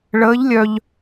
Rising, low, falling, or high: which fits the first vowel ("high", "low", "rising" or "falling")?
rising